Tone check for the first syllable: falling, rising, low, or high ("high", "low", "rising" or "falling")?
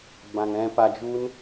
low